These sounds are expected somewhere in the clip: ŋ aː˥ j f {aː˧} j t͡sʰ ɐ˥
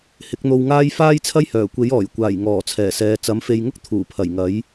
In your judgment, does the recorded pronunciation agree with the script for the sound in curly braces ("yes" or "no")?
no